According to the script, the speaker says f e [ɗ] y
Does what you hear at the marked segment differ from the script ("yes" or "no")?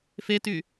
yes